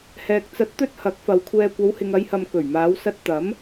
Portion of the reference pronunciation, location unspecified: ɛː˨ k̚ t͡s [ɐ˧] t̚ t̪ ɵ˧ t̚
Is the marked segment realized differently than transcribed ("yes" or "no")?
yes